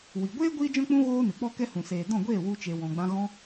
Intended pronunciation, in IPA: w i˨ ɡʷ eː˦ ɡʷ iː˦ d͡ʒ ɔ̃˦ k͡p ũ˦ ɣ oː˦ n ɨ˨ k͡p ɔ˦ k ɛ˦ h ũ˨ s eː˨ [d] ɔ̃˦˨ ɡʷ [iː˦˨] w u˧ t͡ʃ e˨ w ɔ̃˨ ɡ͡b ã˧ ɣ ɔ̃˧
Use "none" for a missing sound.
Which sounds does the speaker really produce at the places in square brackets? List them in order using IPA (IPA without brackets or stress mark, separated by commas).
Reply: d, eː˦˨